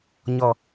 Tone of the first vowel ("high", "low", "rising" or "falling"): low